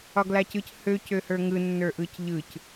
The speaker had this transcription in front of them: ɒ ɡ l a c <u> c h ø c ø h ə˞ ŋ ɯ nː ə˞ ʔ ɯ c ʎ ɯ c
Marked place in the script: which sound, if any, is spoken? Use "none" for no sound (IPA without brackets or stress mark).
ɯ